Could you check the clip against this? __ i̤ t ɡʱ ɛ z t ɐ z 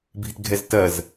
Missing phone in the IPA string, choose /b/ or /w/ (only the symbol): b